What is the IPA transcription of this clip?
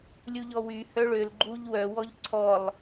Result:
lʲ u ʎ ɔ w y h œ ɭ ø l ɡ͡ǃ u ʎ w œ w ɔ ʎ ǀʰ ɔ lˠ

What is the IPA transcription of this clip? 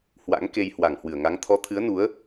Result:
h w a̰˧˥ ŋ k e˧ j h w a˧˩ ŋ h w ɨ˧˩ ə̯ ŋ a˨˦ ŋ t̪ʰ ɔ˨˦ t̪ʰ ɨ˨˦ ə̯ n u˨˦ ə̯

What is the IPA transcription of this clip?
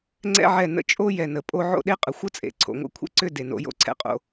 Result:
ŋ͡ǀ ɛ̰˦ ʕ ɛ˦˨ n ə̰˦ t͡ʃʼ o˦ j ɛ˨ n ə˨ pʼ o˧ ʕ o̰˦ ɗ e˦ qʼ ə˨ xʷ ə˦ t͡sʼ ḛ˨ ǀʰ o̰˨ ŋʷ ḛ˦ kʷʰ ḛ˦ ǀ ʏ˦˨ d e˨ n o̰˧ j o̰˧ ǀʰ ɛ̰˦ qʼ o̰˧

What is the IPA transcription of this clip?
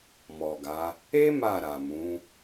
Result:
m ɔ˨ ɡ a˨˦ | e˦ m a˦˨ ɾ a˨ m ũ˨˦

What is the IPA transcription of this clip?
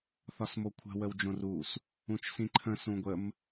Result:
θ ɒ s m o kʷʰ ə̤ w ə w d͡ʒ õ r u s | ũ t͡ʃ s ĩ ǃʰ ə̃ s ũ ɡʷ ə m

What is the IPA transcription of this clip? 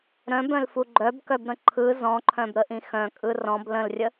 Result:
ɾ œ̃ b œ̃ l f u ɡ͡ǃ œ b k œ b ɾ ə̃ ǃʰ ɯ z ɔ̃ ǃʰ œ̃ b ɾ ə ʔ ĩ x œ̃ kʼ ɯ r ɔ̃ b l ə̃ l rʲ ə

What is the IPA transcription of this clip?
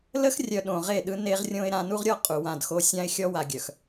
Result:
l ə˦ x rʲ œ˨ ɗ õ˨ ʁ e˦˨ ɗ ɯ˦ n e˦ ʁ rʲ õ˦ ɪ̯ ɾ ã˨ n u˦ ʁ ɾʲ ɔ˦ qʼ u˨ w ã˦˨ d x o˦ sʲ ã˦ ɪ̯ xʲ ɔ˦ w a˨ ɡʲ œ˨ x

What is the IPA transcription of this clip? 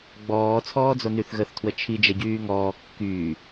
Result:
ɡ͡b ɔː t͡sʰ ɔː d͡z o n y θ ɣ ə θ tʰ w ə t͡ʃʰ i d͡ʒ ɛ ɟ yː ŋ ɔː kː yː

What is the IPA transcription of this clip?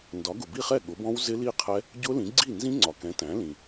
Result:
n d ɒ˩˥ ɡ ʊ˩ b i˥˩ χ ɛ˥˩ ɠ ʊ˩˥ b ɔ̃˦˥ w z ɪ˦˥ l i˥˩ qʰ ɛ˦˥ | ɟ ʊ˦˥ l ĩ˩˥ ɡ͡ǀ i˥˩ n z ĩ˦˥ ŋ͡ǀ ɒ˩ k ɛ̃˩˥ t æ̃˩˥ l ĩ˩

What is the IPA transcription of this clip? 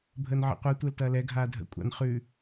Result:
bʱ əː n ʕ ə̰ qʷ ɛ tʷ ɛ l t ɐː l ɛ ɡʱ aː dʱ ə̰ kʷʼ a̰ n χ ʉ

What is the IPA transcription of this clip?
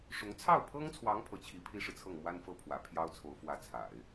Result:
ʂ ʊ˧˥ ŋ t͡sʰ ɑ˥˩ ʊ̯ pʰ ɤ˥ ŋ t͡sʰ w ɑ˧˥ ŋ pʰ ɤ˧˥ t͡ɕʰ i˧˥ pʰ i˥ ʂ ɻ̩˨ t͡sʰ ɤ˥˩ ŋ m w a˥ n f ɤ˥˩ pʰ w ä̰˨˩ pʰ j ɑ˥ ʊ̯ t͡sʰ o˧˥ ʊ̯ f w ä˧˥ t͡sʰ a̰˨˩˦ ɪ̯

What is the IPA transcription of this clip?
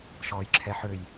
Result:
ʃ ɔː j ǁʰ ɛ ħ ø j

